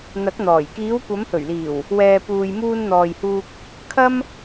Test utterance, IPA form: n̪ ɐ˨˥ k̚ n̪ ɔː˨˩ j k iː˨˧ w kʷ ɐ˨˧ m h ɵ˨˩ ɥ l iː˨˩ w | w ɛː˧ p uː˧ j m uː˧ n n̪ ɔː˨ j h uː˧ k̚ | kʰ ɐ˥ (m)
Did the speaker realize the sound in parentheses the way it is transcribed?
yes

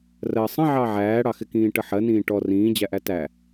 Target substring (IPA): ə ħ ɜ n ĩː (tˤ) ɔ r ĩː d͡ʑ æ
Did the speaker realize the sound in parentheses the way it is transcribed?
no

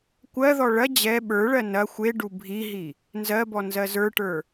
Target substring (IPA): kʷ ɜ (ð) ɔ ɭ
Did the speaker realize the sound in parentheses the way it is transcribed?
yes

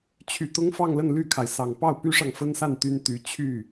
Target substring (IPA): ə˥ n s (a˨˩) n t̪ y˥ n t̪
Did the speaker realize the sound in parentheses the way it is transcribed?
no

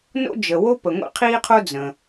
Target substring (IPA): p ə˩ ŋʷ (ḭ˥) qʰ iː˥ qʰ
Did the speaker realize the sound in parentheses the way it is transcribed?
yes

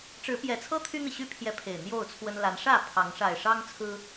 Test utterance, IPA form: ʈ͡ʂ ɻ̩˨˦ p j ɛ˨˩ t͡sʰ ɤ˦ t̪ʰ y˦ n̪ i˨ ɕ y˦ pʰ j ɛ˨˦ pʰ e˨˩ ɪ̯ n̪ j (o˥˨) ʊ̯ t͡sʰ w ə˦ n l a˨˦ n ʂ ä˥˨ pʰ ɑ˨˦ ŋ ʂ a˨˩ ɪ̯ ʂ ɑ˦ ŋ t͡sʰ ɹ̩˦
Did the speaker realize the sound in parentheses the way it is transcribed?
yes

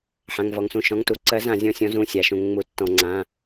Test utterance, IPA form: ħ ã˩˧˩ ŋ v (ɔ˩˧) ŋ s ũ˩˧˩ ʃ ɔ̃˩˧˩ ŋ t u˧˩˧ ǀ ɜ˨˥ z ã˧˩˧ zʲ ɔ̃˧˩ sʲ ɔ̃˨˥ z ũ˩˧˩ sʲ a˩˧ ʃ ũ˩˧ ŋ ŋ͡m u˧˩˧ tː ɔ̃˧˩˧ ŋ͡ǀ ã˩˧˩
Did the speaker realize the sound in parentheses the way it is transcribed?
yes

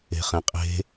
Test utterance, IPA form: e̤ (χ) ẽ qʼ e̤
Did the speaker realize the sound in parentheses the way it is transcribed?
yes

